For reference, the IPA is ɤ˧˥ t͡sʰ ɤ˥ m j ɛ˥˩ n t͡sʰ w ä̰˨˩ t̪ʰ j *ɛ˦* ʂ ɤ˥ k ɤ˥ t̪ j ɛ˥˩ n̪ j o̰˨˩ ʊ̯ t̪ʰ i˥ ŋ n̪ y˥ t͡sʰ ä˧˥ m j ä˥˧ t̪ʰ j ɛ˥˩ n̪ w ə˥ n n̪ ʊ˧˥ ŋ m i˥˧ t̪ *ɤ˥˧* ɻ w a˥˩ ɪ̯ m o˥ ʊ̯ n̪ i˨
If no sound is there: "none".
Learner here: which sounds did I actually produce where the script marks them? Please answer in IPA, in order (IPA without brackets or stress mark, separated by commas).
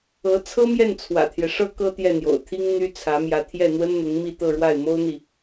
ɛ˦, ɤ˥˧